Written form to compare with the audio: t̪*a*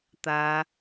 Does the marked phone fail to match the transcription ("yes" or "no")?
no